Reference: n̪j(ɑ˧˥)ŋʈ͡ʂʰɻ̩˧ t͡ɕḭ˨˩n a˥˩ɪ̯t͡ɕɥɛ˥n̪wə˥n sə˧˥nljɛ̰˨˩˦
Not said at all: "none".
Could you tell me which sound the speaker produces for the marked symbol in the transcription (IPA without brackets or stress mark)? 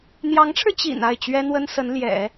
ɑ˧˥